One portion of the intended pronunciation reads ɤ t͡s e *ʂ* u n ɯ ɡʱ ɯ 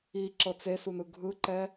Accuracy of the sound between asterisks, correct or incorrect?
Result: incorrect